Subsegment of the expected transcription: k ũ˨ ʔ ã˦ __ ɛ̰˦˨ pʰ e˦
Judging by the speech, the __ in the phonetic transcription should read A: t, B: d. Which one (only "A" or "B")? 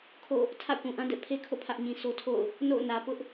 B